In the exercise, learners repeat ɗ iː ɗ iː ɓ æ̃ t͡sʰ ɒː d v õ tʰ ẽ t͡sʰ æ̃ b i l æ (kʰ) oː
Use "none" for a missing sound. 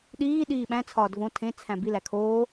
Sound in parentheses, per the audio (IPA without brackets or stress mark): kʰ